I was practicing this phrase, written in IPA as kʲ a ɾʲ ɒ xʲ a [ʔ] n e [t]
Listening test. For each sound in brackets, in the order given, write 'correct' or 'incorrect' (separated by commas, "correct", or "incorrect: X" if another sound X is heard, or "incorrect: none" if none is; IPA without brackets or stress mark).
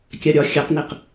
incorrect: q, incorrect: q